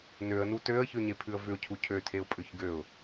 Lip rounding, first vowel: rounded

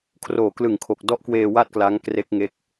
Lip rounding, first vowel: rounded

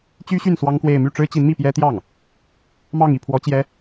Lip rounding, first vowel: rounded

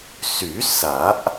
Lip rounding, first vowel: rounded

